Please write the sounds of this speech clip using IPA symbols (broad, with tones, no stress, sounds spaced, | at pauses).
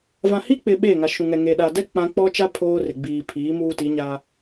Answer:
v ã˨ h i˦ k͡p ɪ˨ ɓ eː˦˨ ŋ a˨ ʃ ũ˨ ŋ ɛ˨ ŋ e˨ ɗ a˨ d ɛ˦ k͡p ã˦ k͡p ɔ˦ t͡ʃ a˦ pʰ oː˦ r ɪ˨ ɡ͡b iː˨ pʰ iː˨˦ m uː˦ t i˨˦ ɲ a˦